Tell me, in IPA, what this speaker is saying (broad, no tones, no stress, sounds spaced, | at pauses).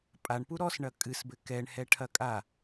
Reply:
pʼ a ɳ p u ɾ ɔ s ɳ ɐ kʼ ɨ s b ɘ k ɛ ɳ h ɛ ʈʰ ɐ kʼ a